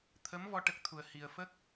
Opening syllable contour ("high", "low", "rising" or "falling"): rising